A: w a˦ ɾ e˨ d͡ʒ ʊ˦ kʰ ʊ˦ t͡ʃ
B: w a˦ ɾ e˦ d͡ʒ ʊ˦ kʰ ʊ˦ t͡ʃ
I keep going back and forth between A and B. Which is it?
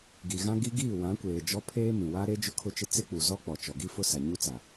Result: B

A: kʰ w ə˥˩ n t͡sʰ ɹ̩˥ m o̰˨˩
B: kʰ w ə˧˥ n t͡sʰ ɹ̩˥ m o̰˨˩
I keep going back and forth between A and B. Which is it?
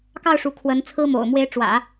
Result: B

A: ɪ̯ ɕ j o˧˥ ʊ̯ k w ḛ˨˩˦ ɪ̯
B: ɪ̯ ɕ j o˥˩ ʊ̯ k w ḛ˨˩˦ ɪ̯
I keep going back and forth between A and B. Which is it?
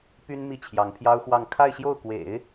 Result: B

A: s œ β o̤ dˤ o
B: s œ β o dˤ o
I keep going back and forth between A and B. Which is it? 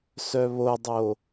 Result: B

